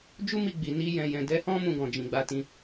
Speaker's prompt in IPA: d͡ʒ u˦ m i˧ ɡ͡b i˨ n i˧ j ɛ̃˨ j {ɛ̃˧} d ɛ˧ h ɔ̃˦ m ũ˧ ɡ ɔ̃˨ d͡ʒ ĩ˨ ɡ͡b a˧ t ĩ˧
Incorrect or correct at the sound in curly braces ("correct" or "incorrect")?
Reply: incorrect